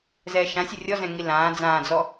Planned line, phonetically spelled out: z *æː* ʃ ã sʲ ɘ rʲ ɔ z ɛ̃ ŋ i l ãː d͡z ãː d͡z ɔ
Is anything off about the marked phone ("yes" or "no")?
yes